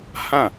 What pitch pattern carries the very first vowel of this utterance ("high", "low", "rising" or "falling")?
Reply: falling